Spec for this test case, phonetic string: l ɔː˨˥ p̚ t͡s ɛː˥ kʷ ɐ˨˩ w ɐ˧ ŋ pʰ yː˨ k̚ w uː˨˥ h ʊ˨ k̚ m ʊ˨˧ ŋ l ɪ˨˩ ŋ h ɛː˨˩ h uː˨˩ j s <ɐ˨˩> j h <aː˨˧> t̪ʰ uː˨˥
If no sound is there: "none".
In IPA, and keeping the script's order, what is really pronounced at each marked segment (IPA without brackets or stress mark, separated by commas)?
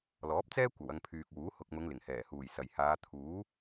ɐ˨˩, aː˨˧